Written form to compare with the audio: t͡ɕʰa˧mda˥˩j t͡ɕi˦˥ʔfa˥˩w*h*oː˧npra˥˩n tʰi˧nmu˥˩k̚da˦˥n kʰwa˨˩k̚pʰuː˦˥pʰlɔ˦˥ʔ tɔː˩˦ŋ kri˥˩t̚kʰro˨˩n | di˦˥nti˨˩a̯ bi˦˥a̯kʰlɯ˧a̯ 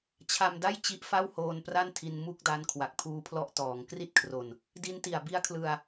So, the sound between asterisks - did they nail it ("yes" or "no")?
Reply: yes